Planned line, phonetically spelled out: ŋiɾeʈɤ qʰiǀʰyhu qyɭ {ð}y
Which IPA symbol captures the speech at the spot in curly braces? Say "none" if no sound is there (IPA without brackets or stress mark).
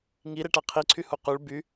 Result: b